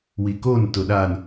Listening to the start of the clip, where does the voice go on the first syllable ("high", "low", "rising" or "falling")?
low